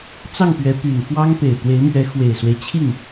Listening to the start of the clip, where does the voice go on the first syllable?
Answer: falling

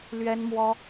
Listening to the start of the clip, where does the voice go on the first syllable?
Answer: high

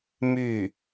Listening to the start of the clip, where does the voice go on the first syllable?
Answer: falling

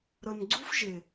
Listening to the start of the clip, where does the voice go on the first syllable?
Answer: low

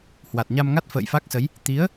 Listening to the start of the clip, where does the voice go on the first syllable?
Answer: low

